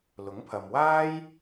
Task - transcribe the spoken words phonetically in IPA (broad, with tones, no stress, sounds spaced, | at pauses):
l ʊ˨˥ ŋ pʰ ɐ˨ m w aː˥ j